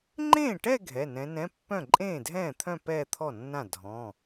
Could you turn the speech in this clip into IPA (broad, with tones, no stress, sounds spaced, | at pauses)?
ŋ͡ǃ ẽː˥˩ ʈ ɛ˥˧ ɡʱ ɛ˩˧˩ n ɛ̃˨˦ n ɛ̃˧˥˧ pː œ̃˥˩ ǃʼ ẽː˥˩ dʱ ɛ̃ː˥˩ t̪ʰ œ̃˥˧ p ɛː˥˧ t̪ʰ ɔ˥˩ nː ã˥˩ dʱ ɔ̃˩˧˩